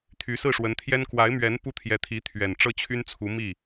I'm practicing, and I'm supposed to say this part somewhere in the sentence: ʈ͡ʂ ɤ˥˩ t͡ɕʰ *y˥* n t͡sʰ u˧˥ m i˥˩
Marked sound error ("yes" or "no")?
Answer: no